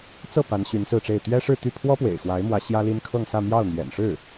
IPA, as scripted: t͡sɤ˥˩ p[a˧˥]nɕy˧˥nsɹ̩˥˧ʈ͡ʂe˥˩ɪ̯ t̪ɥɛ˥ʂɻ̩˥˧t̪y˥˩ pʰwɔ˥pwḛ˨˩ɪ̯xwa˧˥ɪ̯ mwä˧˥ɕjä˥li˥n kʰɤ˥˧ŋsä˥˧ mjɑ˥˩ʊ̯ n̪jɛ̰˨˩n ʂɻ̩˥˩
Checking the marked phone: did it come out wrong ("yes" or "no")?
no